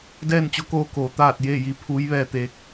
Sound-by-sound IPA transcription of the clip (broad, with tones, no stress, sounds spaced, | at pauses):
d ɛː˥˨ n t͡ɕ o˧˥ k oː˧ k oː˩˧ t̪ aː˥˨ t̚ j eː˥˨ j i˧ pʰ uː˧˥ j ʋ ɛː˧ t̪ eː˧˥ k̚